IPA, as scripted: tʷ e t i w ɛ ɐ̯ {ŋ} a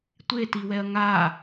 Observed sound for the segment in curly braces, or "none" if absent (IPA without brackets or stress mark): ŋ